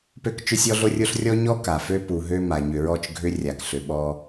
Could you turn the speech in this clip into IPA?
p ø˦ k t͡ʃ ʏ˦ sʲ ɔ˦ ɮ o˦ rʲ o˦ ɬ rʲ ɔ˦ ɲ ɔ˦ k a˨ f ø˦ p u˨ ɦ ø˦ m a˨ ɲ ʏ˨ ɹ ɔ˦˨ t͡ʃ ɡʱ ʏ˦ rʲ a˨ k ɬ ʏ˨ ɓ ɔ˦

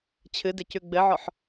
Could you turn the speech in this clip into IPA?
t͡ɕʰ ɨ d ɪ c ʉ ɡ͡b ɘ ʕ ɔ ħ

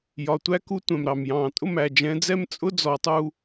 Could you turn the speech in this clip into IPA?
j ɒ˨ tʷ æ˦ k u˦ tʷ ɛ̃˨ m ɾ ɑ˨ m j ɑ̃ː˨ tʼ ʊ˦˨ m æ˨ d͡ʒ ɛ̃˨˦ d͡z ɛ˦ m t͡sʼ ʊ˦ d͡z ɔ˨ tˤ u˧

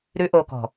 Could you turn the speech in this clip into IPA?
ɾ ʉ˦ ʔ o˧ k ɔ̤˨

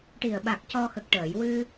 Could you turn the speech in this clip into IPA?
ʈ i˨˩ ə̯ ɓ a˨˩ k̚ c ɔ˧ x ə˨˩ k̚ ʈ əː˨˩˨ j w ɨ˧

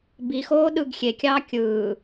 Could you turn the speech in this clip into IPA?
b i x oː ɗ ɯː ɡ xʲ e kʲ ɑː kʲ ɯː

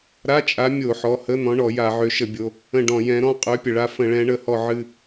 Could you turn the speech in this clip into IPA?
ɾ a˧˥˧ t͡ʃʼ a˨˥ mʲ o˧˩˧ ħ ɔ˩˧˩ h ə˧˥˧ n̪ ɔ̃˨˥ ɳ ɔ˧˩˧ j a˧˩˧ ʕ ø˨˥ ʃ ə˧˩˧ bʲ o˩˧˩ | ə̃˦˨ ɖ ɔ̃˧˩˧ j ɛ̃˨˥ ɾ ɔ̃˧˥˧ qʼ ø˨˥ pʲ ə˩ ɭ a˦˨ f ə̃˧˩˧ ɭ ɛ̃˨˥ ɳ ə˩˧˩ h ɔ˦˨ ʕ ɨ˦˨

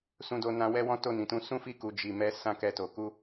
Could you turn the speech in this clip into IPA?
s ũ˧ d o˧ n ã˧ w ɛ˦ w ɔ̃˦ t o˦˨ n ĩ˨ t ũ˧ s ũ˦ f i˦˨ k u˨ d͡ʒ i˨ m ɛ˨˦ s ã˦ k ɛ˧ t o˨ k u˧

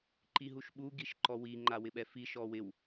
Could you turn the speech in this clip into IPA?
ǃ i ɦ u ʃ ɓ u ɡ i ʃ ǃ ɔ w i ŋ͡ǃ a w ɪ ɓ ɛ f i ʃ ɔ w ɪ w

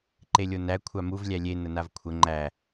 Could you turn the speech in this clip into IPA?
ǃ e lʲ o n æ kʷʰ a m u v lʲ æ lʲ e n ə n a v kʷʰ ə ŋ͡ǃ æ

